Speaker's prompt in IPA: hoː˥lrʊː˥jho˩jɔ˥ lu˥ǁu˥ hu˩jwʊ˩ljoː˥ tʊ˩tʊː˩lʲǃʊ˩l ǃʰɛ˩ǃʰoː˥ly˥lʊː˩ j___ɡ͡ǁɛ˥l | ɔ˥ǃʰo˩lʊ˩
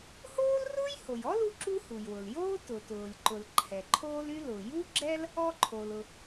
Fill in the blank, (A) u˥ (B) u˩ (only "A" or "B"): A